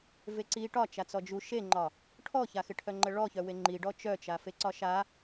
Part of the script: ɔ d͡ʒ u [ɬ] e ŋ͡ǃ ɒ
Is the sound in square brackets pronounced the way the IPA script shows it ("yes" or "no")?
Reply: no